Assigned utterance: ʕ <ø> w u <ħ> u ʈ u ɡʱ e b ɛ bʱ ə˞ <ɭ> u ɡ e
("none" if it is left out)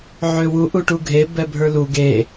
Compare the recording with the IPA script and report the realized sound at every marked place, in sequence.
ø, ʔ, l

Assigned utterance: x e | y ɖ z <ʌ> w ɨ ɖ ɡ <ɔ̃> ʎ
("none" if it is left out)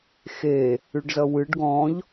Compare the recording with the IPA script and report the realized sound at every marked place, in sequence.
ʌ, ɔ̃

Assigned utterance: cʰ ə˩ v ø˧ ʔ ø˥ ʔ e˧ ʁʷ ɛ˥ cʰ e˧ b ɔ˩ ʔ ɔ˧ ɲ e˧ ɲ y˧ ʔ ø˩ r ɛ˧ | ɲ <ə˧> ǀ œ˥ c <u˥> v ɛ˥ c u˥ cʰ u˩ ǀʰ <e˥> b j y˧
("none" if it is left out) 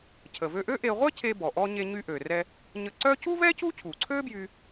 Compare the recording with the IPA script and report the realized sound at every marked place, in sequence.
ə˧, u˥, ø˥

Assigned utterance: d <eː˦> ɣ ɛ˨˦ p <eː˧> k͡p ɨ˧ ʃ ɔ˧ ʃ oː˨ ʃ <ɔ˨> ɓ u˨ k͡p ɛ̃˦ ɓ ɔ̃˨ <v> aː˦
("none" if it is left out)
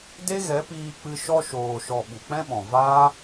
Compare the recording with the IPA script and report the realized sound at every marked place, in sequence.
e˦, iː˧, ɔ˨, v

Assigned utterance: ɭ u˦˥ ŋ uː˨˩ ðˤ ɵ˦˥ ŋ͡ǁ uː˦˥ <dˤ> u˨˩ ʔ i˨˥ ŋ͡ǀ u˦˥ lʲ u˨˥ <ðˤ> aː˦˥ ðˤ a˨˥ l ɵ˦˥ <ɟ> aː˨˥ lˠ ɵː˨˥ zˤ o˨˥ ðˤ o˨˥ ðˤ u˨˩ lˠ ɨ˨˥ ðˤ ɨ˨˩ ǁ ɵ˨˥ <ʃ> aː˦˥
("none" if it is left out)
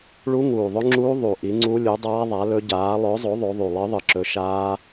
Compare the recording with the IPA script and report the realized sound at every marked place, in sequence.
ðˤ, dˤ, ɟ, ʃ

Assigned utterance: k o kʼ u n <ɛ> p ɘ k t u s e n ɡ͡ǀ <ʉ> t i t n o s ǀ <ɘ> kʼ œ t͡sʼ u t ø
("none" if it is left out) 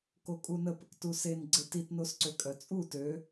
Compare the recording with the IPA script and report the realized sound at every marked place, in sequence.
ə, ɘ, ø

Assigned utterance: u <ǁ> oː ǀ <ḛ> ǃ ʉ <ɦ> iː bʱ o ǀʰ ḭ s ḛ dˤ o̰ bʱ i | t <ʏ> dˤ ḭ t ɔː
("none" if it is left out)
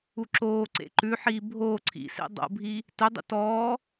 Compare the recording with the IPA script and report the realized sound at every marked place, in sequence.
ǁ, ḛ, ħ, ʏ

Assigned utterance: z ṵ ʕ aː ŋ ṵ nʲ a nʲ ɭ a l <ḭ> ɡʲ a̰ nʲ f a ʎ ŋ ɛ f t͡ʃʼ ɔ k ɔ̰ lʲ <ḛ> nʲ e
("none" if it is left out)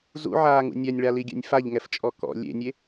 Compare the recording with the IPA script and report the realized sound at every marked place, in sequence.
i, ḛ

